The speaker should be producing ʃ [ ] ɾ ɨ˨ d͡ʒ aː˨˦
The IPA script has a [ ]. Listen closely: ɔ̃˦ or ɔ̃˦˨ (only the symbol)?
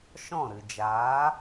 ɔ̃˦˨